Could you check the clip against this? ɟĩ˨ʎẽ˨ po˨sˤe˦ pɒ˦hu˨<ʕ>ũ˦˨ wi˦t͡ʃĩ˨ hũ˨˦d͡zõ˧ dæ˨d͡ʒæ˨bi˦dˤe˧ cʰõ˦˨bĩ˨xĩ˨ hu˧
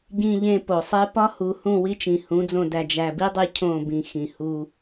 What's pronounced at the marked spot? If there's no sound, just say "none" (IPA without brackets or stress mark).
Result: h